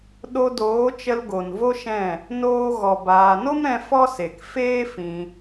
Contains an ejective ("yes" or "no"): no